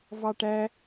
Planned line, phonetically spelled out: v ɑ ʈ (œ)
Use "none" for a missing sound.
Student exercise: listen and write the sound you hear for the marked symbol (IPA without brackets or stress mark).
æ